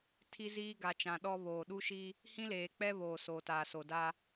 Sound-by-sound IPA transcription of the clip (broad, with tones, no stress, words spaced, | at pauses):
tʰi˦ziː˦ ɡa˨t͡ʃã˨ɗɔ˦ βoː˨ɗu˦ʃi˦ | hĩ˦leː˨k͡pɛ˦βoː˨ soː˨taː˨so˨da˦